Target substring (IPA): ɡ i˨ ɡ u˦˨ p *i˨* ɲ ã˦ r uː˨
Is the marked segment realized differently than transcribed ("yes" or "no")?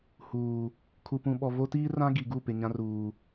yes